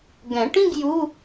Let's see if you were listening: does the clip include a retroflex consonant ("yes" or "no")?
yes